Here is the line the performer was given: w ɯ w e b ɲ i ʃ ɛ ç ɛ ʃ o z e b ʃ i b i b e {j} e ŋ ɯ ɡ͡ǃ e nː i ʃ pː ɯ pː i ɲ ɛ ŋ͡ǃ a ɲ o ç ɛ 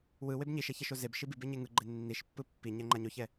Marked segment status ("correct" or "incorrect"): incorrect